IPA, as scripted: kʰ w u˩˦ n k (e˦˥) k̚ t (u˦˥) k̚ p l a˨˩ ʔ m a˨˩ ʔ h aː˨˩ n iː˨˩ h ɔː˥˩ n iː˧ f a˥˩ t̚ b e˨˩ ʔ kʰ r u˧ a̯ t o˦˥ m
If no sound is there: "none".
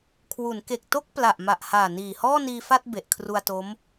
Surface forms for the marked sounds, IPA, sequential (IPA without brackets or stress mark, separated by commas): e˨˩, o˦˥